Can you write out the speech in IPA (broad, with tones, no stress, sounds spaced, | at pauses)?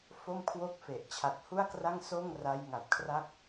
f o˥˩ m kʰ w o˥˩ k̚ f e˨˩ ʔ t͡ɕʰ a˨˩ t̚ h u˥˩ a̯ k r a˥˩ ŋ s oː˥˩ ŋ r a˦˥ j ŋ a˨˩ t̚ kʰ r a˥˩ k̚